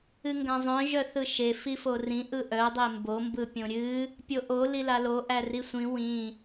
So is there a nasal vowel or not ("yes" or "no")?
yes